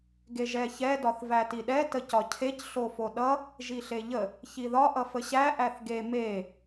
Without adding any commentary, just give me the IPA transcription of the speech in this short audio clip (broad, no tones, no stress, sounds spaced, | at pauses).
ɡ e ʒ ɛ ç ɛ d ɒ θ v æ t i ɗ ɛ t ə c ɒ cʰ e c ɬ o f o ɗ ʌ | ʒ i ɬ e ʎ ə | ç i ð ɒ ʔ ʌ f ə ɕ æ ʔ æ θ ɡ e m e